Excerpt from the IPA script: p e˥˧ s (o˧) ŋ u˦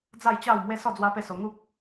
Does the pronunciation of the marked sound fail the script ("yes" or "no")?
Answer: no